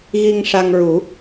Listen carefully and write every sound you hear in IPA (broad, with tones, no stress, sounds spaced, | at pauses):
ɣ i˧ ŋ ʂ a˧ ŋ ɹ u˨˩˦